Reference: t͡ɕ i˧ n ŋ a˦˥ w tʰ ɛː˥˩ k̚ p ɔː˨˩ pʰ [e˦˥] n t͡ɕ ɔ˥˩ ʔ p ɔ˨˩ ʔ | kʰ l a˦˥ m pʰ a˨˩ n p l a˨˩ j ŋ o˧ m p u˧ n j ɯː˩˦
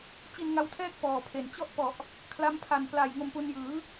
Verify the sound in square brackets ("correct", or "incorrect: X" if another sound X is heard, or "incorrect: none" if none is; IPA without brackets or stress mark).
incorrect: e˨˩